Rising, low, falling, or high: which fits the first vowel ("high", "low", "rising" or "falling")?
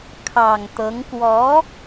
low